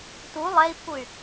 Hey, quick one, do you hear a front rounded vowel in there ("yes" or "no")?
yes